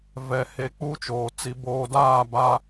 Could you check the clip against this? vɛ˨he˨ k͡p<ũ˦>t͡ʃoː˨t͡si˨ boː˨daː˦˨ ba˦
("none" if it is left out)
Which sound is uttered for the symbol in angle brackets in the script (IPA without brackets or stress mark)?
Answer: u˦